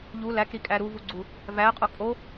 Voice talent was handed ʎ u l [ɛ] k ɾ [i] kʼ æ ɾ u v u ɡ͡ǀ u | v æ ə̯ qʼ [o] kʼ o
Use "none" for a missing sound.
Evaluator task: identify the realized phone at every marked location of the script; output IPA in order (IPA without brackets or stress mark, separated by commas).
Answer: æ, i, o